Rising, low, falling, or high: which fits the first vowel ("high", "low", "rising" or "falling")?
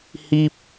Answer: high